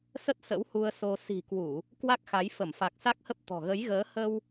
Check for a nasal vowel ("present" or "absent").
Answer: absent